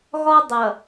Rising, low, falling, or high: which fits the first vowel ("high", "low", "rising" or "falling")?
high